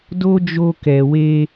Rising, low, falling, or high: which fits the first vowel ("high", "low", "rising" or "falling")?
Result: high